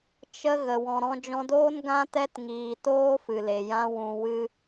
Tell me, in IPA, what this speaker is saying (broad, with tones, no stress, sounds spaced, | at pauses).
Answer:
t͡ʃ ə˦ ɣ ə˨ w ɔ̃˨ ɾ ɔ̃˧ d͡ʒ ɔ̃˧ d oː˦ n ɡ ã˦ t ɛ˦ t ŋ iː˨ t oː˦ f ɨ˨ l e˨ j ã˧ w ũ˧ w ɨ˦